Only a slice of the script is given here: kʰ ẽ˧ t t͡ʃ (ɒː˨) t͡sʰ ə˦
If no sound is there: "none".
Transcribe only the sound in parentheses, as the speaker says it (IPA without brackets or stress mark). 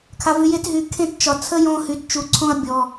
ɒ˨